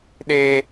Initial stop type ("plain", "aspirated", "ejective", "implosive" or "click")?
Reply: implosive